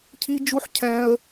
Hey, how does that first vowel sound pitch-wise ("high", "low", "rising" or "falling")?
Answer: high